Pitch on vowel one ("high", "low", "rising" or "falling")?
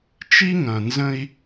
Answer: high